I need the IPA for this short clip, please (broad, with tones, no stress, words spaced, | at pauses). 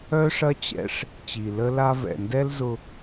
œ˦ʂɐ˦t͡ɕɛ̰˦ʂ | t͡ɕi˨lə˦la˦ vɛ̰˨ndɛ˦lzʊ˦